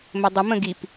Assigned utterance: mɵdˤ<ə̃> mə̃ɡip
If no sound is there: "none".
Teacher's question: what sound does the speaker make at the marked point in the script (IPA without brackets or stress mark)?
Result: ə